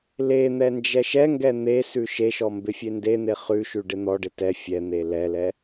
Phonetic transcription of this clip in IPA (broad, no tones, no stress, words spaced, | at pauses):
len̪ɛ nd͡ʒɛʃɛŋɡɛ n̪esʉ ʃeʃɔ mbɪfʲenden̪e χʉʃʉ ɖɪn̪ɔɖɪ tɛ fʲɛn̪e lɛlɛ